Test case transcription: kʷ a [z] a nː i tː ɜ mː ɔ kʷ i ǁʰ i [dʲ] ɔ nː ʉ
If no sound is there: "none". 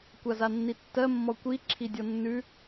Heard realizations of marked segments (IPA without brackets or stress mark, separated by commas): z, dʲ